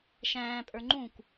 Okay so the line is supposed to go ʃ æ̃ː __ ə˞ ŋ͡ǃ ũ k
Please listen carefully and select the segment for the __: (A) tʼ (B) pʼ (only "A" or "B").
B